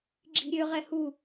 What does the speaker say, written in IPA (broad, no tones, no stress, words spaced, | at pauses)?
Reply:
ɡ͡ǁi̤ɾʲøʁɛ hu